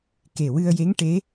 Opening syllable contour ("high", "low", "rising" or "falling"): low